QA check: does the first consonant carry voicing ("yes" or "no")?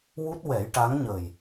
yes